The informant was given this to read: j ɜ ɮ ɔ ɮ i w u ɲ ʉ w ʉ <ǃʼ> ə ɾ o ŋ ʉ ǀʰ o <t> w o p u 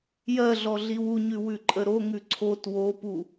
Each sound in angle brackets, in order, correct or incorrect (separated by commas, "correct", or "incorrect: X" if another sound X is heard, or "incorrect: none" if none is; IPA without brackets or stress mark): correct, correct